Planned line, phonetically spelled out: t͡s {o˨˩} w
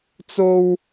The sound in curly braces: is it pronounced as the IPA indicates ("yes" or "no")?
no